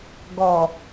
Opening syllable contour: low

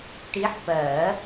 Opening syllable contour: rising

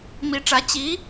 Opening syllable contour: rising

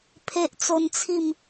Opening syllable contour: high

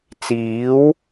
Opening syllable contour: rising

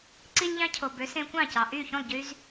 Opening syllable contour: high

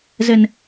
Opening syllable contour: low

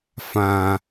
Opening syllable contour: high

